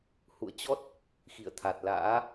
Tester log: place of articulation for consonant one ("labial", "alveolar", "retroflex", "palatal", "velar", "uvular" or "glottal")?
glottal